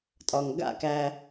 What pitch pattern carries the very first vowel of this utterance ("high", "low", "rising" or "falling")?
low